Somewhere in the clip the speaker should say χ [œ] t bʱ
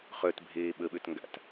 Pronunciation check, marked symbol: correct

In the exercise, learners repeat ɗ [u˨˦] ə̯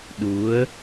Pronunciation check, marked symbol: correct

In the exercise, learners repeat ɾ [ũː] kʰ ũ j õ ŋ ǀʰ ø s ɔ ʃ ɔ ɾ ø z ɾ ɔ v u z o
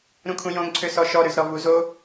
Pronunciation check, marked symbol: incorrect: ũ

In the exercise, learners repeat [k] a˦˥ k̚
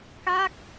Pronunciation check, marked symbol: correct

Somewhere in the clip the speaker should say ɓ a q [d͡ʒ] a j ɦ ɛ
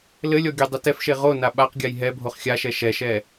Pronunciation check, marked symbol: incorrect: ɡʲ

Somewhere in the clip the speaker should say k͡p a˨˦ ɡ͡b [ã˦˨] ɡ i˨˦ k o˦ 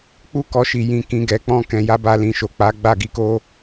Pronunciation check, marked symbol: incorrect: a˦˨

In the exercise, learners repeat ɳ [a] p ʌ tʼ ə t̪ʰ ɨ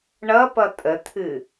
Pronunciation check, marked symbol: incorrect: ʌ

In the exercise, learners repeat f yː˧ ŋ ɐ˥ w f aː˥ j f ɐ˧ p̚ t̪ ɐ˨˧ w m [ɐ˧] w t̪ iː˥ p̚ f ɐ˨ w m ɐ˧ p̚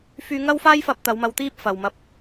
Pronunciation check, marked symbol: correct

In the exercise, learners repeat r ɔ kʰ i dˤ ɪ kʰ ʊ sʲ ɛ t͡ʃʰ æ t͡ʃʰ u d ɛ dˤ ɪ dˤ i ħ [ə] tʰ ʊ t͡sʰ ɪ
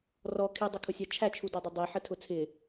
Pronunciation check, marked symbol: correct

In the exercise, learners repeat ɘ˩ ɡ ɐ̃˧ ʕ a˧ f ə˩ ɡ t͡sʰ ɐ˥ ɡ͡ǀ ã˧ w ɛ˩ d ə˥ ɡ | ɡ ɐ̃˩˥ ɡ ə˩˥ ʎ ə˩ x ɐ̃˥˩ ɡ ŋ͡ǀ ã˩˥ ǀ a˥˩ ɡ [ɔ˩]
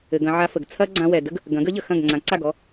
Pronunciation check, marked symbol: incorrect: ɔ˥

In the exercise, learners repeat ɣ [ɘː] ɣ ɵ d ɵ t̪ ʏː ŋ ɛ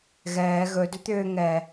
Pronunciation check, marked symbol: incorrect: ɛː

